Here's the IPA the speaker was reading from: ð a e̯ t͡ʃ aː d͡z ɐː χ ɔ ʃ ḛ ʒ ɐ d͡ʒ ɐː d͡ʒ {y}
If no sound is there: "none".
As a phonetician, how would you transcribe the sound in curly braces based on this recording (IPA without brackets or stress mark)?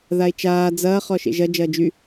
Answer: y